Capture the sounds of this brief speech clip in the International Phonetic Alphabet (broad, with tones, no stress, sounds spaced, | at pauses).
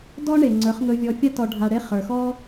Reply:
d ɔ˦ ɳ e˨ ŋ͡ǀ ə˞˨˦ χ ŋ ɵ˧ vʲ ɔ˧ fʲ a˦ t ɔ˨ ɖʱ a˨ ɽ e˧ χ ə˞˨ x ɔ˦